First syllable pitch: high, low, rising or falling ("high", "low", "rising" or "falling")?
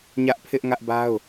high